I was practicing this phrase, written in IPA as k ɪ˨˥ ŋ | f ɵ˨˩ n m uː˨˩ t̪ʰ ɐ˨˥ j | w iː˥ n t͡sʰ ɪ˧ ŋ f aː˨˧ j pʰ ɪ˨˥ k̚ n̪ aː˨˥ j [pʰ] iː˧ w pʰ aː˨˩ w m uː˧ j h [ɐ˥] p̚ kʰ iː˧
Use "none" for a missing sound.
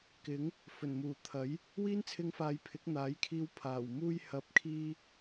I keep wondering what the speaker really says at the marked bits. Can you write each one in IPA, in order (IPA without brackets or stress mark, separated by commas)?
kʰ, ɐ˨˥